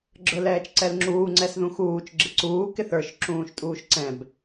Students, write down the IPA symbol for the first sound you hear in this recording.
ɡ͡ǁ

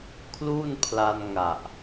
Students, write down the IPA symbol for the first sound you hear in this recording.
kʰ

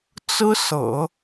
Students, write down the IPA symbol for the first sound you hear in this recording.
t͡s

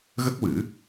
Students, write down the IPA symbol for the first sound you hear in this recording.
ɣ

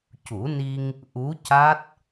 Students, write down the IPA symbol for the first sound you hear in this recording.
c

